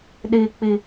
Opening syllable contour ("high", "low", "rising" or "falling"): low